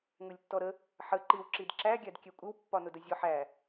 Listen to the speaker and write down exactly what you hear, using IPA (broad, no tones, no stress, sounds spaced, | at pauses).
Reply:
ŋ ʊ lʲ tː ɔ ɾ ə | ħ ə ǃ i w ǁ i d ǁ æ ɡʲ æ d kʲ ɛ kʷʼ ɪ w pː ɒ n ʊ d ə zʲ ɔ ħ æ